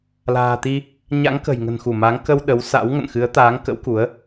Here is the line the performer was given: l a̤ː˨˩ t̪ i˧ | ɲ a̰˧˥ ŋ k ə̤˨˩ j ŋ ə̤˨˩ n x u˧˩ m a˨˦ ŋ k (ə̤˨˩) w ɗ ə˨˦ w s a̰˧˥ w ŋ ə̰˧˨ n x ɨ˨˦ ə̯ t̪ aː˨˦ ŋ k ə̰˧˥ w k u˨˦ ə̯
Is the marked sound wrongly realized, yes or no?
yes